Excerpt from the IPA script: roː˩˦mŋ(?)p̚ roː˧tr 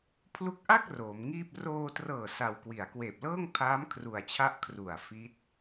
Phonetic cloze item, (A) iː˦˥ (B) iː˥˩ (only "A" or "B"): B